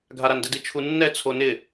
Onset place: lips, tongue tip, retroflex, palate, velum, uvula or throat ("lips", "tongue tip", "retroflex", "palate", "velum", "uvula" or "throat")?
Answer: velum